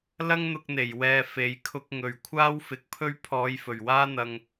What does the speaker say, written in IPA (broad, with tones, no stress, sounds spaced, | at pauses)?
l ɐ˥ ŋ n̪ ʊ˧ k̚ n̪ e˨˩ j w ɛː˨ f e˨˧ j kʰ ʊ˧ k̚ ŋ ɵ˨ ɥ kʷʰ aː˥ w f ɪ˨˥ k̚ pʰ ɵ˥ ɥ pʰ ɔː˨˧ j f ɵ˨˩ ɥ w aː˥ n̪ ɐ˧ ŋ